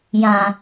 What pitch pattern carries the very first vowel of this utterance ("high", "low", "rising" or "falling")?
low